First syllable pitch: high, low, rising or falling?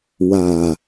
low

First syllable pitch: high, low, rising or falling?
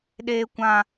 high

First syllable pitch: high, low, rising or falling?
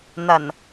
low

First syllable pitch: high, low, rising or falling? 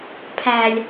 low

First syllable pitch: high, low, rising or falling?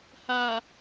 low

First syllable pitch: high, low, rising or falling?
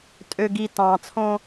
low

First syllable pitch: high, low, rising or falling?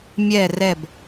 falling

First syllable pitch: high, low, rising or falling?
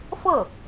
falling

